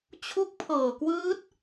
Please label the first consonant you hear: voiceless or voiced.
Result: voiceless